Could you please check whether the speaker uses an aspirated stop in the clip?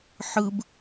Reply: no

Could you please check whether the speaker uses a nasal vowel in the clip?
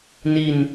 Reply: no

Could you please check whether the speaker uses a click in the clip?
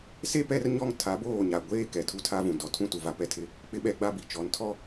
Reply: no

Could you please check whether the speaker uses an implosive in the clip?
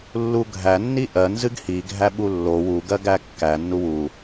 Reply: yes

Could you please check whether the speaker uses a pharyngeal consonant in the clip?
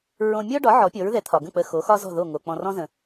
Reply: yes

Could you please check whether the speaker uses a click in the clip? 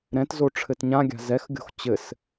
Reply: no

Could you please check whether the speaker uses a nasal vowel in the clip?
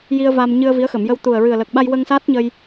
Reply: no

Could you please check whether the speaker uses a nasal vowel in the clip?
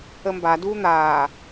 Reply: no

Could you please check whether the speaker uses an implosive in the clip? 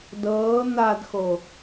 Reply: no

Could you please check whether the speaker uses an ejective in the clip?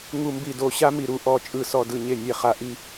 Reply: yes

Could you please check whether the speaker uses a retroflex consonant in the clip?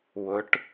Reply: yes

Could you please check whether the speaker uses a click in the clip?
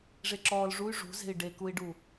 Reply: yes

